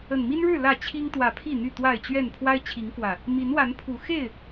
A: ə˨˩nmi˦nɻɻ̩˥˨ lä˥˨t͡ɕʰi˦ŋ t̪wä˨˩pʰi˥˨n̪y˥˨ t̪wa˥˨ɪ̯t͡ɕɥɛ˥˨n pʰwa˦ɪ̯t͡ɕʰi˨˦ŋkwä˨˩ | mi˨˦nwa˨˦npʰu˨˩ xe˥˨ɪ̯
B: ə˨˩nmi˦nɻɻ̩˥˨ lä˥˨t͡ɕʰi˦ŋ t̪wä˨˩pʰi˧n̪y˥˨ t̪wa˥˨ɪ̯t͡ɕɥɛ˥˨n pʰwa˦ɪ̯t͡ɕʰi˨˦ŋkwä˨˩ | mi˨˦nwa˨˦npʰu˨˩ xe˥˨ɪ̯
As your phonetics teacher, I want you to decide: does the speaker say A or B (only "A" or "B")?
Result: A